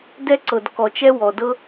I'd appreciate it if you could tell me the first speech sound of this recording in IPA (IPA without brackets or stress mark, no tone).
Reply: d